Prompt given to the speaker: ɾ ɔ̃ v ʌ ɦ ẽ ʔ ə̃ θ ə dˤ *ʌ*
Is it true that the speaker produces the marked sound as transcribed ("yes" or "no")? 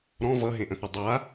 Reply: no